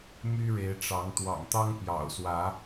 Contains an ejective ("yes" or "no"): no